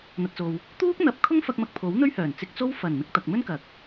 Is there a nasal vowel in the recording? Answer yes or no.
no